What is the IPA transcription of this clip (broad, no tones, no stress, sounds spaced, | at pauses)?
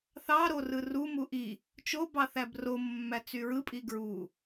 θ ɑ ɾ o r ɯ r u m u ʔ i | t͡ʃ o b ɑ θ æ b r o mː æ t͡s y ɹ ɯ pʼ i ɡ ɹ u